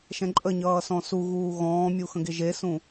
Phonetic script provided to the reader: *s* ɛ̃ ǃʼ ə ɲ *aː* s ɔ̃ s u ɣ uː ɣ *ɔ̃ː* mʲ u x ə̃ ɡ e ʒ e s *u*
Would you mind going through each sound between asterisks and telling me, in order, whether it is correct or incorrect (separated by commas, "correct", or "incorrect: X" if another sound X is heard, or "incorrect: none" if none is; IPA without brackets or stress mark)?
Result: incorrect: ʃ, incorrect: ʌː, correct, incorrect: ũ